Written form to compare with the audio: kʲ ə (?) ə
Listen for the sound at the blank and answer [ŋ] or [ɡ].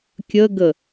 ɡ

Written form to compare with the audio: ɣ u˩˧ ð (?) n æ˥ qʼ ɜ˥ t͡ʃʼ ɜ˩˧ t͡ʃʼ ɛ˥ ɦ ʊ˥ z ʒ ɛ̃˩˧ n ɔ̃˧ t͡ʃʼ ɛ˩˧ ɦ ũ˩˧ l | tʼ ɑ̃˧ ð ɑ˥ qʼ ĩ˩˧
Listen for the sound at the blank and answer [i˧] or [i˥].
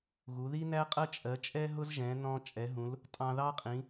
i˥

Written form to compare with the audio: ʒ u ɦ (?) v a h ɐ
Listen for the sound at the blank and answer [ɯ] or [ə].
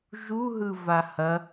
ɯ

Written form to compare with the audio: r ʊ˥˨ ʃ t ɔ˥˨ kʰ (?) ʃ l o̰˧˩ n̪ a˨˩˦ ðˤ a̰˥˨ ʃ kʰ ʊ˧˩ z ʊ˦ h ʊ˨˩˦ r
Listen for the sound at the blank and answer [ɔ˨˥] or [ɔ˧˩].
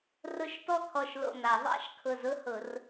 ɔ˧˩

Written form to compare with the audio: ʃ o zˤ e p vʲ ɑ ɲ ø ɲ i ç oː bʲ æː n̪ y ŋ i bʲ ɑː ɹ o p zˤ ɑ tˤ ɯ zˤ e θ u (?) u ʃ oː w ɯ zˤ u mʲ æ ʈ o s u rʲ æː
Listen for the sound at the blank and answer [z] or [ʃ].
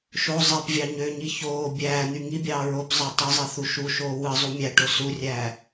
ʃ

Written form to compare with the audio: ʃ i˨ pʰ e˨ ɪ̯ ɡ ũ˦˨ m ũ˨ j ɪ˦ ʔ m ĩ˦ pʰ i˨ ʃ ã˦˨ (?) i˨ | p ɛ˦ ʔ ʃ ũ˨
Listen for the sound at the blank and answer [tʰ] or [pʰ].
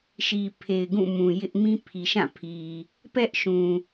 pʰ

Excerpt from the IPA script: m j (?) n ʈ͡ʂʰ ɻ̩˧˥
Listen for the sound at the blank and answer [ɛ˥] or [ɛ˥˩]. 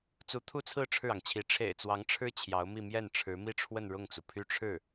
ɛ˥˩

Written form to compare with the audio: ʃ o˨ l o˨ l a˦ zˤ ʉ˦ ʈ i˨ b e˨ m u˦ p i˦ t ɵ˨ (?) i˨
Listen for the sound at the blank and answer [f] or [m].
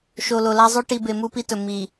m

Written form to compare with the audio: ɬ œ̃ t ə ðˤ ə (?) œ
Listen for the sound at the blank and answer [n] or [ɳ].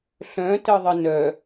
n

